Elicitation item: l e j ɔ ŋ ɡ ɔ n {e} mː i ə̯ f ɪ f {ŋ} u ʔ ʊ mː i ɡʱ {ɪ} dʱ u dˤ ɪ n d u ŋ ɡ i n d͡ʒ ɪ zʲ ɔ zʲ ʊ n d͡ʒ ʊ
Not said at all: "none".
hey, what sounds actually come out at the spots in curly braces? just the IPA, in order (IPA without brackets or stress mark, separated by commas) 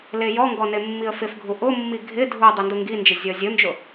e, ɡʱ, ɪ